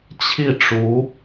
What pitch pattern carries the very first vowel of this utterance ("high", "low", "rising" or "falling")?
falling